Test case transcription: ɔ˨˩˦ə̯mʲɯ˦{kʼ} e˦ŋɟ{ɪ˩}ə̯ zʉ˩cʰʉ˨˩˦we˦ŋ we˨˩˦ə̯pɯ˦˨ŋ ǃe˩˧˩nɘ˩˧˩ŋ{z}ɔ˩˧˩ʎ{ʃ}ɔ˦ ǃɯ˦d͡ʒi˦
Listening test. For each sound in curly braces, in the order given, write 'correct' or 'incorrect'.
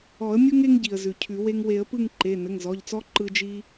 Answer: incorrect: ŋ, incorrect: i˩, correct, incorrect: t͡s

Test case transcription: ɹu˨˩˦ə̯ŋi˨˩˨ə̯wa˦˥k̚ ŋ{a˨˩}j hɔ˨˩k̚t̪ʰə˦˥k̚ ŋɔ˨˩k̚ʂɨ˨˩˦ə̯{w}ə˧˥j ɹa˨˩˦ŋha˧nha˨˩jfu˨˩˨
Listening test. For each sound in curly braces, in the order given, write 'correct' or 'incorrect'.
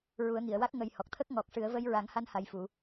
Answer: incorrect: ə˨˩, incorrect: v

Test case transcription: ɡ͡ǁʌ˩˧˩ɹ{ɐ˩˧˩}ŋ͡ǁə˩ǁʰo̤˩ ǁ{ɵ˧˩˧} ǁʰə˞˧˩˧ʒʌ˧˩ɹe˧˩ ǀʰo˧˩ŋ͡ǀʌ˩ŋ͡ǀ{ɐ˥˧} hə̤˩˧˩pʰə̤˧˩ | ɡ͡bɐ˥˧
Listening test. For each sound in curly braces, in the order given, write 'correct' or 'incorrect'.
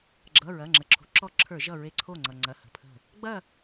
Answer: correct, incorrect: ɔ˧˩˧, incorrect: ɐ˩˧˩

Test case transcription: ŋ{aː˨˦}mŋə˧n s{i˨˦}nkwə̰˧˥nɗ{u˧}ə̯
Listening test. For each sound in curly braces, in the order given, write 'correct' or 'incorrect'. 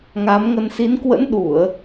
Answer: correct, correct, incorrect: u˧˩˨

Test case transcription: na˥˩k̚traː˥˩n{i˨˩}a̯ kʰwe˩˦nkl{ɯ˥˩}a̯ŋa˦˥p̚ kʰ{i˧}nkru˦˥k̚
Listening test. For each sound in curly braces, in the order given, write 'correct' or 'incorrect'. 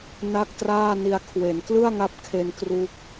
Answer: incorrect: i˧, correct, incorrect: e˧

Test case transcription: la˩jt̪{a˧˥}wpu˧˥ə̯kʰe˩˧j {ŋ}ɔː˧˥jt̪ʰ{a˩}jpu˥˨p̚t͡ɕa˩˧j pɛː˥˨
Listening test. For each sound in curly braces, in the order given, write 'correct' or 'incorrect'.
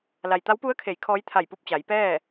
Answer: correct, incorrect: kʰ, incorrect: a˧˩

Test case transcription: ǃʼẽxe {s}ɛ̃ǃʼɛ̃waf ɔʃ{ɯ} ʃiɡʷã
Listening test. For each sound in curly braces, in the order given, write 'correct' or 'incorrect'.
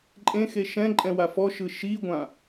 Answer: incorrect: ʃ, correct

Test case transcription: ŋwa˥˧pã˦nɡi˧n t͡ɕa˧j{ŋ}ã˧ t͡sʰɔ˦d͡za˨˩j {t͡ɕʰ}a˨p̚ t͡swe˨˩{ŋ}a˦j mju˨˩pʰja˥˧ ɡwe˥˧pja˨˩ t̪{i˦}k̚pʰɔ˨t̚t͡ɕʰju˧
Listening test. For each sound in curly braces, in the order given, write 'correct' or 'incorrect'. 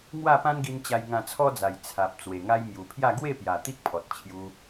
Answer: correct, incorrect: t͡sʰ, correct, correct

